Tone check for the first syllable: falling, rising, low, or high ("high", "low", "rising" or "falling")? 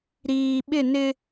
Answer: low